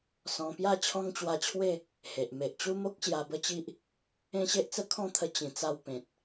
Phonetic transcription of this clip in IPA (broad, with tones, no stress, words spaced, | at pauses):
sɔ̃˧pja˥˧ t͡ɕʰɔ̃˦ŋt͡ɕwa˧t͡ɕʰwe˥˧ | he˨ʔ me˨ʔt͡ɕu˦mo˦k̚ ɕja˧bə˦t͡ɕi˦ʔ | ẽ˦ɕe˦ʔt͡sə˦ kʰɔ̃˥˧t̪ʰə˧ t͡ɕĩ˨˩t͡sa˧w pẽ˨t̚